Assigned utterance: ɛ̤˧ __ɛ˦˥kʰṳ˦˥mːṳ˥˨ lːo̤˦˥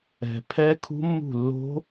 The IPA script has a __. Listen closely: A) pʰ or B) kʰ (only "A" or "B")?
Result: A